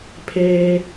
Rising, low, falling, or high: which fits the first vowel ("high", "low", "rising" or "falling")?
high